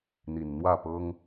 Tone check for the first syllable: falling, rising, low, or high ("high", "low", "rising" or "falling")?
low